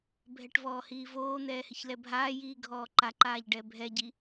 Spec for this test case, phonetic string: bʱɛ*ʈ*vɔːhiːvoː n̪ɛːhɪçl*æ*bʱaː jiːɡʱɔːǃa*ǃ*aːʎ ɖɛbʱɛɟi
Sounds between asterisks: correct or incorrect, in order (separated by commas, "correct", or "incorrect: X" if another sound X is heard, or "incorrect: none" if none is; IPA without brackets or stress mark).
correct, incorrect: ɛ, correct